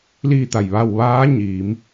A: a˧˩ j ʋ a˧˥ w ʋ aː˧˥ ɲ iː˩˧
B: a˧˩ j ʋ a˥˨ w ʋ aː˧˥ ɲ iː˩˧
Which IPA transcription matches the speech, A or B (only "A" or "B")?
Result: B